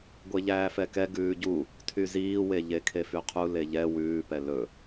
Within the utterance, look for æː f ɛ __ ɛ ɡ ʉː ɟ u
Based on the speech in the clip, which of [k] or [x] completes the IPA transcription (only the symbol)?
k